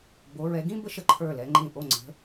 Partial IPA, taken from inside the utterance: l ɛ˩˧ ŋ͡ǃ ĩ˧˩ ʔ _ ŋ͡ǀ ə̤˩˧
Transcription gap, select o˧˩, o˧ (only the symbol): o˧˩